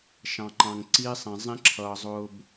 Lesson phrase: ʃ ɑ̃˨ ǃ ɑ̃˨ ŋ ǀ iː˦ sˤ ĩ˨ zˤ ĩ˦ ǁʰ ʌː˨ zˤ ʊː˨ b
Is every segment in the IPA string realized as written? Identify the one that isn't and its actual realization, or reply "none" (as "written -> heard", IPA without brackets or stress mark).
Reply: none